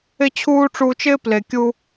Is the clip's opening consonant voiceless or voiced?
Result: voiceless